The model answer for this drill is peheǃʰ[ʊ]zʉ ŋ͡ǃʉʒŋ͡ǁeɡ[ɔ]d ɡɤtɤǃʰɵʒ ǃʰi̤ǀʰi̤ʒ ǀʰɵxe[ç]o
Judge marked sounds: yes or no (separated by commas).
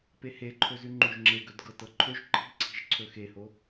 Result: no, no, no